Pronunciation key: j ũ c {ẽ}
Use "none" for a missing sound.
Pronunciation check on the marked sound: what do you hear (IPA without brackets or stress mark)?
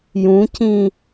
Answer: ĩ